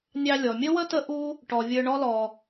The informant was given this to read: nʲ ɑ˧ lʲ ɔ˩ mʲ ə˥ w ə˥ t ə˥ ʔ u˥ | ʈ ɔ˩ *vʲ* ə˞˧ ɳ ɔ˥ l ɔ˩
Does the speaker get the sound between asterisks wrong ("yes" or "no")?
no